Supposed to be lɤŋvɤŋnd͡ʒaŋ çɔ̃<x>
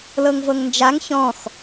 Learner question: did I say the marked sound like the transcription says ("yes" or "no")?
yes